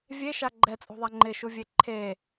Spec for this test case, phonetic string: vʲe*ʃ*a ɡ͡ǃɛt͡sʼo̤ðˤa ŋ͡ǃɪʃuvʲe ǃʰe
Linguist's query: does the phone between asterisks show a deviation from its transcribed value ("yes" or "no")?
no